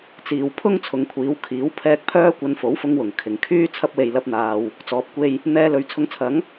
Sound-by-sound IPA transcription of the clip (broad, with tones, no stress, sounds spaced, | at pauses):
t͡s iː˨˩ w pʰ ʊ˥ ŋ t͡sʰ ʊ˨˧ ŋ kʷʰ iː˨˧ w kʰ iː˨˥ w pʰ ɛː˧ k̚ pʰ œː˥ kʷ ɐ˧ n f o˨˥ w f ʊ˧ ŋ w ʊ˨˩ ŋ kʰ ɪ˨˩ ŋ kʰ yː˥ t͡sʰ ɐ˧ p̚ w e˨ j l ɐ˧ p̚ n̪ aː˨ w | t͡s ɔː˨ p̚ kʷ e˧ j | n̪ ɛː˧ l ɵ˨˥ ɥ t͡sʰ ʊ˧ ŋ t͡sʰ ɐ˨˥ ŋ